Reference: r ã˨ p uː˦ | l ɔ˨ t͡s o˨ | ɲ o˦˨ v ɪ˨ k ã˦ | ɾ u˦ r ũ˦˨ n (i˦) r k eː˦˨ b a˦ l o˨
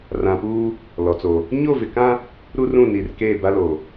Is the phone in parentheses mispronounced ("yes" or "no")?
yes